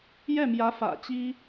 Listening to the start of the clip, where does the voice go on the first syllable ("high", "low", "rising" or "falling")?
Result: falling